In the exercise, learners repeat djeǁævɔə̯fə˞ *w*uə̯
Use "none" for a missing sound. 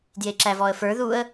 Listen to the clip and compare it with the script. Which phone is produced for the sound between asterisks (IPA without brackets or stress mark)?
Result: ð